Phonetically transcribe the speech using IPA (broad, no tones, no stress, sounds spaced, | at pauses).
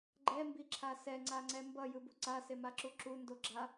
ɡ͡ǃ ɛ m b i ǁʰ a s ɛ ŋ͡ǀ a ŋ͡ǀ ɛ m b ʌ j ɯ b u ǀ a s e m a ǁ u ǁ u n d o ɡ͡ǁ a